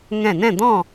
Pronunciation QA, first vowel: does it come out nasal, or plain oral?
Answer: nasal